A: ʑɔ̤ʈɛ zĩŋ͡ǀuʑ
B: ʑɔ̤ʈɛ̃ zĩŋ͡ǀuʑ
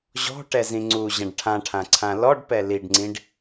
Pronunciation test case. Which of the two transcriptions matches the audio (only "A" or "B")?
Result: A